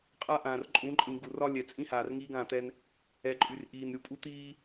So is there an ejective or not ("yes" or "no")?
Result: yes